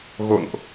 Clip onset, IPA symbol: ɣ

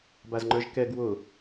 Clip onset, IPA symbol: b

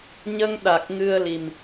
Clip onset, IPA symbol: ɲ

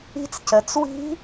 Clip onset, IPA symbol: i̤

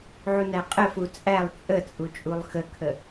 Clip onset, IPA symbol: ʕ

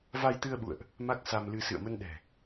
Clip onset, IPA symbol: v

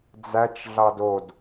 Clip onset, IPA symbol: d͡z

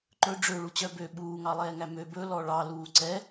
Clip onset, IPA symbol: ǃ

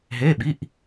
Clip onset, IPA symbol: ɦ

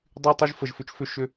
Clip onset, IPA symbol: dˤ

